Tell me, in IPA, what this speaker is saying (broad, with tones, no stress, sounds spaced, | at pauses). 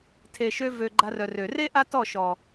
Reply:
tʰ e˨ ʃ ø˧ v ø˨ ɡ͡ǃ a˧ r œ˨ r ø˨ r e˦ ʔ a˦ t ɔ˦˨ ʃ ɔ˨